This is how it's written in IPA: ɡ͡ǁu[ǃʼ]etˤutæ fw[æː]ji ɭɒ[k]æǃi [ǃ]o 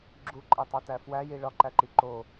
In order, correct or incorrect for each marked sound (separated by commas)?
correct, incorrect, incorrect, correct